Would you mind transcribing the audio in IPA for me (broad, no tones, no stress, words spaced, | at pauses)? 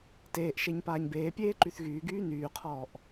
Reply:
teːʔʃeɲ paːɲbeːpʲeː ǃyθɣyːɡyː nyːqʰɔːʔ